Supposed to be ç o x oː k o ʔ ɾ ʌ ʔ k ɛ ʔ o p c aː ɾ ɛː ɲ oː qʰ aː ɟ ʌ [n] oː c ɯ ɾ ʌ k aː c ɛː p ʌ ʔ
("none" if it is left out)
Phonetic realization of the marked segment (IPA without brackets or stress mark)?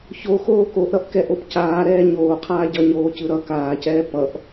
ɲ